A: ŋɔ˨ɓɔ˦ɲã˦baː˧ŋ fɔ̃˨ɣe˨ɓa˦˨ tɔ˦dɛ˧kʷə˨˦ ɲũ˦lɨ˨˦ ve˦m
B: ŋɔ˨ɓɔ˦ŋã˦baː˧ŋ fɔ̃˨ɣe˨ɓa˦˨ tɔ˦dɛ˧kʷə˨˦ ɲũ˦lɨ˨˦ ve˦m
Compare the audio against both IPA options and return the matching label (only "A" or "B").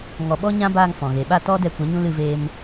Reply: A